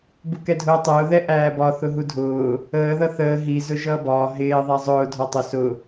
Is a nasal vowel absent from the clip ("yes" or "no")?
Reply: yes